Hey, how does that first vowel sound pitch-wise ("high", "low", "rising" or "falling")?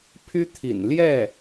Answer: high